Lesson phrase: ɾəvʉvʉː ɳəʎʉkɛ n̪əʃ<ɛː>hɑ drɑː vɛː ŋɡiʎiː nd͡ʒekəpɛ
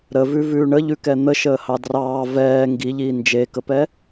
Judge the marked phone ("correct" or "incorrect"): incorrect